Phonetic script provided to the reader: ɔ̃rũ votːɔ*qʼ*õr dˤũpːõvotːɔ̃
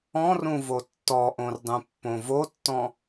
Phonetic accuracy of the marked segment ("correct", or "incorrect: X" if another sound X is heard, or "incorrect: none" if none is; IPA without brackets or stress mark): incorrect: ʔ